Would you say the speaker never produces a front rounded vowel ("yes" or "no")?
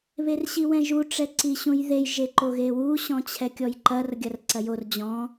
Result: yes